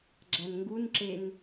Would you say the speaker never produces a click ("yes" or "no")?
no